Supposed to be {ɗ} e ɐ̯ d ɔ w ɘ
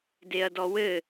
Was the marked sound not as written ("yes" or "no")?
yes